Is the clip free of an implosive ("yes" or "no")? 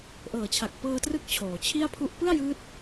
yes